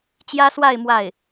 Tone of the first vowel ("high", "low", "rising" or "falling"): high